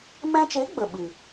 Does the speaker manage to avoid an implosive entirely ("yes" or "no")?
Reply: no